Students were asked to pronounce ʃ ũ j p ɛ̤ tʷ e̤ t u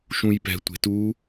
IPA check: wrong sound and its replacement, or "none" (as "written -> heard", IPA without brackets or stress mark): none